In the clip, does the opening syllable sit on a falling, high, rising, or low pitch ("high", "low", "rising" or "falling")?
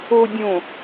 low